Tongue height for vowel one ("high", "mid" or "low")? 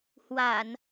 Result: low